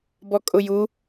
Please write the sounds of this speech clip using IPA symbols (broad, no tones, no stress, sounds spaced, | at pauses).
b ɔ kʼ ʊ j u